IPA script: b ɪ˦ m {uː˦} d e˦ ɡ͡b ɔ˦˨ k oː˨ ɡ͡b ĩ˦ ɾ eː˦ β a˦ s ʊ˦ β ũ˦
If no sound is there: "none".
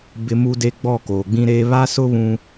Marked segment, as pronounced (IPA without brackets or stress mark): u˦